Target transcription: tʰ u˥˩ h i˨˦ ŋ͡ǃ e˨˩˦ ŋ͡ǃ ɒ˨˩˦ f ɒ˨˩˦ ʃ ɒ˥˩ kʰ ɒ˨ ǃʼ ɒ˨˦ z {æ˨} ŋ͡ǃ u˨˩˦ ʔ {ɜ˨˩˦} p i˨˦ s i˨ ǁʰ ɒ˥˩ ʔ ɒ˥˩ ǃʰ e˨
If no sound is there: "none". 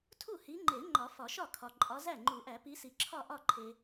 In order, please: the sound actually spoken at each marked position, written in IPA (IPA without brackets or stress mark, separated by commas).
æ˥˩, æ˨˩˦